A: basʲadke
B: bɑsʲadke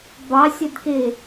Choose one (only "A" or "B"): B